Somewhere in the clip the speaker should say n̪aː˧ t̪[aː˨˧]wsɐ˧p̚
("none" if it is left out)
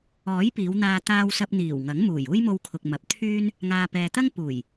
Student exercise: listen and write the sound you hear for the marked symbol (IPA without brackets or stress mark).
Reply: aː˧